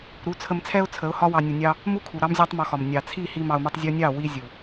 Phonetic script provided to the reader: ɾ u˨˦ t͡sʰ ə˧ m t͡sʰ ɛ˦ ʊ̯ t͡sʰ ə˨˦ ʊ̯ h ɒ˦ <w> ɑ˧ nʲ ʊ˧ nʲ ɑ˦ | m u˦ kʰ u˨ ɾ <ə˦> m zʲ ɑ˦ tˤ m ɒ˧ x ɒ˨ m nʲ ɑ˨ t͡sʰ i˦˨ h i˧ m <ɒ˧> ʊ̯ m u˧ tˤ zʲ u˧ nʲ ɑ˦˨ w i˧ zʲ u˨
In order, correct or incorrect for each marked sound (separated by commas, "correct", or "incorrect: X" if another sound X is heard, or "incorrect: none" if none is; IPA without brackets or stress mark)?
correct, incorrect: ɑ˦, incorrect: ɑ˧